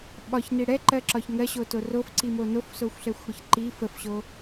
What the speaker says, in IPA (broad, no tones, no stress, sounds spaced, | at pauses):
ɓ ɒ ç n i ɽ ɛ ǃ ɜ ǁ ɒ ç ŋ ɜ ɕ o t o r o f ǀ i m o n o f s o xʷ ɬ ɛ xʷ ɽ ə ç ǃ i f ə f ɕ o